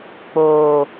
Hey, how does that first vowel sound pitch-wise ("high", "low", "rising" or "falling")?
low